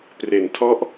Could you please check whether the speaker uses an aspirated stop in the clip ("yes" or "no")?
yes